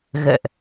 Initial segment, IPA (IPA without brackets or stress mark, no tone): ɣ